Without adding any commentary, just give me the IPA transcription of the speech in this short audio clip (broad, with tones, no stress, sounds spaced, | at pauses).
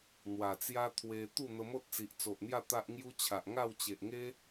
n̪ w a˨˩ t͡s j a˦ t̪ʰ w e˧ t̪ u˥˧ n̪ ə˧ m o˦ t̚ t͡s i˨ ʔ t͡s o˨ ʔ n̪ j a˥˧ t̪ a˦ ʔ ŋ j u˦ t͡ɕʰ a˨ ʔ ŋ a˥˧ w t͡ɕ e˨ ʔ ŋ e˦